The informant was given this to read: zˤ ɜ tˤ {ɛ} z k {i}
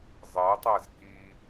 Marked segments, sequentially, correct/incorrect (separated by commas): incorrect, correct